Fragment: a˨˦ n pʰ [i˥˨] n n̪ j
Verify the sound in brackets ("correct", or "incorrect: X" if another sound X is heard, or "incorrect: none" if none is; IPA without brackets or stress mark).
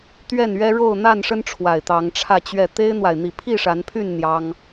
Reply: incorrect: y˥˨